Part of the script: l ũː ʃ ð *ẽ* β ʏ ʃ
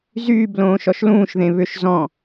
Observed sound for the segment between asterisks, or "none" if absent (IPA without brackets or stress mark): ẽ